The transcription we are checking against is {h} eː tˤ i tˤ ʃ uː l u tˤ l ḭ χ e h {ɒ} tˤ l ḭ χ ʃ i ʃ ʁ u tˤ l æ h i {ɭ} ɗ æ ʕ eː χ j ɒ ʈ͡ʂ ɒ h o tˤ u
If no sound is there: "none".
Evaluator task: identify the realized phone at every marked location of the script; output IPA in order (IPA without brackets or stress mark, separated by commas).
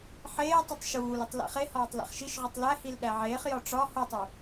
ħ, ɒː, l